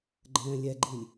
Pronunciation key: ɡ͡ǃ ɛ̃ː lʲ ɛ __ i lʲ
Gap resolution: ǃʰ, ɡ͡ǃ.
ɡ͡ǃ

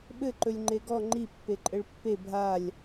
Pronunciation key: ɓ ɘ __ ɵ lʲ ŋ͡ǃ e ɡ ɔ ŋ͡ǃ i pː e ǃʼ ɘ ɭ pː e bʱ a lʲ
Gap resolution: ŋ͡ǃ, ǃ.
ǃ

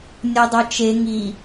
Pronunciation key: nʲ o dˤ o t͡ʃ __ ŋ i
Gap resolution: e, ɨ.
e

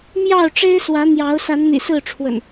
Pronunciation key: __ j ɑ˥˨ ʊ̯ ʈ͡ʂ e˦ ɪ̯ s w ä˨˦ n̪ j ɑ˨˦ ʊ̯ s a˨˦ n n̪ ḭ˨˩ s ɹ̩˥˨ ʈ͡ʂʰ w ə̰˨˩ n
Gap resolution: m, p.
m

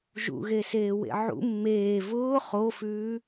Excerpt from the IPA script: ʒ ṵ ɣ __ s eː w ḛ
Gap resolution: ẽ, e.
e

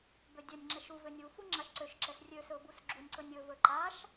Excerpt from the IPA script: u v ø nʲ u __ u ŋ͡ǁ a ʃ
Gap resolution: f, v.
f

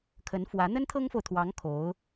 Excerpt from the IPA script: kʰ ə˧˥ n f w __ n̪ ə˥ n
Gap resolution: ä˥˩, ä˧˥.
ä˧˥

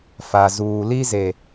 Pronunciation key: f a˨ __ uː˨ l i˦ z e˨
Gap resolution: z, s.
z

